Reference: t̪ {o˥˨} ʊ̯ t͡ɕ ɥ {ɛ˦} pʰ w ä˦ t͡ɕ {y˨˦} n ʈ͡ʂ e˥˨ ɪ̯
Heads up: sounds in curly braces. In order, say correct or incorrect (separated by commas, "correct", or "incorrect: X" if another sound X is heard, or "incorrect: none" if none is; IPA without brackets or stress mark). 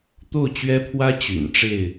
correct, correct, incorrect: y̰˨˩